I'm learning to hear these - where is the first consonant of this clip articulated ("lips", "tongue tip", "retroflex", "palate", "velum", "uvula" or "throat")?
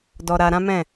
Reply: tongue tip